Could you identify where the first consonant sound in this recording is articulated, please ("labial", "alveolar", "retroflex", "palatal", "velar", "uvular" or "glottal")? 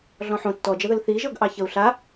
alveolar